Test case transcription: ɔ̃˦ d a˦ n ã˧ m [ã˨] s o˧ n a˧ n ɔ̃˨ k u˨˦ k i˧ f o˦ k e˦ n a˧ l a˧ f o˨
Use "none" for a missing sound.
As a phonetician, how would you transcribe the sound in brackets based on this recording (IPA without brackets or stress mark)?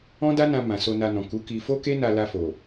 ã˨